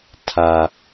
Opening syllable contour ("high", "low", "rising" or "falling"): low